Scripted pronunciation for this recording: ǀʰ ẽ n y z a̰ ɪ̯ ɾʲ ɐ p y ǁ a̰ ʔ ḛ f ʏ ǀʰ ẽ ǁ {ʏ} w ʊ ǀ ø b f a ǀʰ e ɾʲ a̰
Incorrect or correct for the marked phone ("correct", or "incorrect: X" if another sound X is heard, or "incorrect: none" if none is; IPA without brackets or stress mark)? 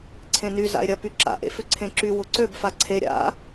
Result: incorrect: y